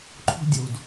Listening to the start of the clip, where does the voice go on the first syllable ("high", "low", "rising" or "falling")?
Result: high